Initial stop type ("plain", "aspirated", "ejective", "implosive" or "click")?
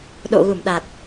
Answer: implosive